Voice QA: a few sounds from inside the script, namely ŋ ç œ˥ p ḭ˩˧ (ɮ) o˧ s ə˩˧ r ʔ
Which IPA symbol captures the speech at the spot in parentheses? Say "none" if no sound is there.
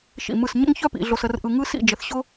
ɮ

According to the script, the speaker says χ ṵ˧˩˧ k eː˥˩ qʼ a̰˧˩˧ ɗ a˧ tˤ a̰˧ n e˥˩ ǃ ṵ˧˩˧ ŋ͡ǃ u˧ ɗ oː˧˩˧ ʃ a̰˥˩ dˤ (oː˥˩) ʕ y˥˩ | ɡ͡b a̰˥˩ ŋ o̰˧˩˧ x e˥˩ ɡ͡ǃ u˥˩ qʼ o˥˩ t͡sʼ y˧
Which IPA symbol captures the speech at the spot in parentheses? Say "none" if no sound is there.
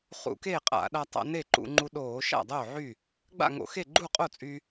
oː˥˩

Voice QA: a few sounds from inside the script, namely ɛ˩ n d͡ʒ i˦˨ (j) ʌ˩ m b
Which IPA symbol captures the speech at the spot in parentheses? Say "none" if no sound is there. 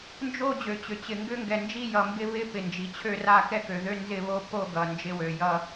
j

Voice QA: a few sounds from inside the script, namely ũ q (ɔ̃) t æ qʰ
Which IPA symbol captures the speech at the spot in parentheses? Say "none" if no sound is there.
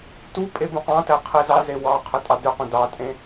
ɑ̃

